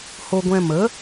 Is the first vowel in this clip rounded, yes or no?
yes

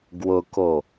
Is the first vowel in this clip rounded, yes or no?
yes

